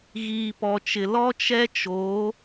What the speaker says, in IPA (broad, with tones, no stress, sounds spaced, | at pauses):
ɣ iː˨ p ɔ˨ t͡ʃ ɪ˨ l ɔ˦ t͡ʃ ɛ˦ t͡ʃ o˨˦